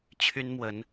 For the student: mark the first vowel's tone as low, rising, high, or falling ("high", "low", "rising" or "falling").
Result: high